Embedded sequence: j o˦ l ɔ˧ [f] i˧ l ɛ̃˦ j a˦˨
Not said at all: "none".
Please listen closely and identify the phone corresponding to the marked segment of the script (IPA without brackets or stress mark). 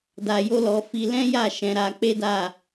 f